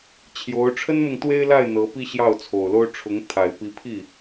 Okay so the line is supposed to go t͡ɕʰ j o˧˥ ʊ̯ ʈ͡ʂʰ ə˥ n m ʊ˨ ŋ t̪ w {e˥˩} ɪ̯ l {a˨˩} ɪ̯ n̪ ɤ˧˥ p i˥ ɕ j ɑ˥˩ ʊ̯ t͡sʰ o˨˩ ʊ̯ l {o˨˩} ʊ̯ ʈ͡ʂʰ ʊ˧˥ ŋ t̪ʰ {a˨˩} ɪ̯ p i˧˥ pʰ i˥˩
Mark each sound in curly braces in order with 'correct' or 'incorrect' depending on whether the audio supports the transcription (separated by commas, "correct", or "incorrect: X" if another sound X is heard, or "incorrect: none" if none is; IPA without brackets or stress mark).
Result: incorrect: e˥, incorrect: a˥˩, incorrect: o˥, correct